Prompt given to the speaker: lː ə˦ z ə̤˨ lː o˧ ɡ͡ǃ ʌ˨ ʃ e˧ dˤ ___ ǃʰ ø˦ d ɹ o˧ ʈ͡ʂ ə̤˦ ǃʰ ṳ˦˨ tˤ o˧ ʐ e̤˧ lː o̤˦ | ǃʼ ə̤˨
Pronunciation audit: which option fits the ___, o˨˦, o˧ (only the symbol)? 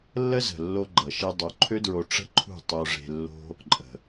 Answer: o˨˦